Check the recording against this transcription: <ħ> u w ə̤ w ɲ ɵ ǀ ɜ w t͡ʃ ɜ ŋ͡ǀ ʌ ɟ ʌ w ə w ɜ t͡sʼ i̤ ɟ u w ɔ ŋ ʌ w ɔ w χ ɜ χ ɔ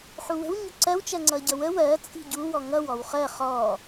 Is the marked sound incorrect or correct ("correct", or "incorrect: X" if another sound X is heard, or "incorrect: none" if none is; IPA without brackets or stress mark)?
correct